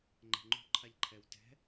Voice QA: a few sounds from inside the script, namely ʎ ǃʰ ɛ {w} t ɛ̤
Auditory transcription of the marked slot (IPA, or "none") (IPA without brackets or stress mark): w